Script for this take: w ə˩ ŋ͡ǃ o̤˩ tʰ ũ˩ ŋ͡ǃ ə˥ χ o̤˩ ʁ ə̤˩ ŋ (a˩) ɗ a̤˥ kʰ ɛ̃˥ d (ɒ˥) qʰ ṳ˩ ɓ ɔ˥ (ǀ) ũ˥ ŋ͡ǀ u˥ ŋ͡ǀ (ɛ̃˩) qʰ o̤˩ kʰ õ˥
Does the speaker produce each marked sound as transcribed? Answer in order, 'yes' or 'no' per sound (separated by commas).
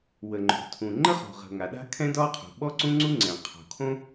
yes, yes, yes, yes